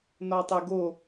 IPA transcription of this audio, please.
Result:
n ɒ tˤ e ɡ o

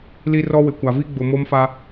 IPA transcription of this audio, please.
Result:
l i˦ r ɔ˦ w ɪ˨ kʷ a˨ v i˦ ɡ͡b ʊ˨ m o˦ m f a˦

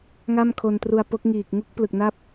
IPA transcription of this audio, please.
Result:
ŋ a˥˩ m kʰ o˧ n t r u˧ a̯ p o˦˥ k̚ ŋ iː˨˩ k̚ ŋ u˦˥ k̚ p l ɯ˨˩ k̚ n a˥˩ p̚

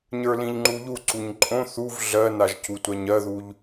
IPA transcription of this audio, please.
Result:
ɲ ə˞ l ĩ ʎ ŋ͡ǃ u ʎ u ǀ u ɲ ǃʼ õ θ u v ɮ ɜ n a ʒ c u tʷ ɜ ɲ ɜ ð u ʎ

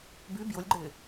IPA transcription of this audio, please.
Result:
b y b j ʊ lʲ ɡ͡ǃ ɪː

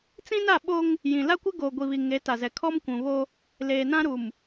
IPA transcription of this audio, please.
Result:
t͡s ĩ˦ n a˦˨ ɓ o˦ ŋ | j ĩ˨ l a˦ kʷ ɪ˦ ɡ oː˨ ɡʷ i˨ β i˨ ŋ e˨˦ t a˨ z ɛ˨ kʰ ɔ˦ m kʷ ũ˨ β o˦ | l eː˨ n ã˦ ɾ u˨ m

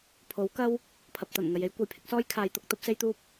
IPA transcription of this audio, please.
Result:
pʰ o˨˥ w k ɐ˥ w | pʰ ɐ˨ p̚ t̪ ɐ˨˩ n ŋ ɐ˨ j e˥ j kʷ ɐ˨ j pʰ ɪ˨˥ k̚ s ɔː˥ j kʰ aː˨˧ j t̪ ʊ˨˥ k̚ t̪ ɐ˥ p̚ s e˥ j t̪ uː˥ p̚

